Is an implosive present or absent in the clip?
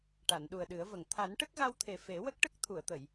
present